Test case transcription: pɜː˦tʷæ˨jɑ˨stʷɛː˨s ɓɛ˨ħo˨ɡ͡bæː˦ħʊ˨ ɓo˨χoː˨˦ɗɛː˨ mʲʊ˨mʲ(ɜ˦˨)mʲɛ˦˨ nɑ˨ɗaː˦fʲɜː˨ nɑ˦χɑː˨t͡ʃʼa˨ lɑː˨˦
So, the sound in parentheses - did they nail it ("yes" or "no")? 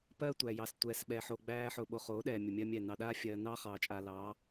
no